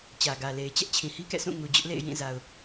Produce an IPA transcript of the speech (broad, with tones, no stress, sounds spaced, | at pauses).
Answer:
t͡ɕ ä˨ ɡ ä˨ l e˨ ɪ̯ t͡ɕ ɛ˦ ʔ t͡ɕʰ ĩ˨ h i˦ k ɛ̰˦˨ s ũ˦˨ ŋ u˨ d͡ʑ ʊ˦ ʔ l ḛ˦˨ ɪ̯ j ĩ˦˨ z a˨ ʊ̯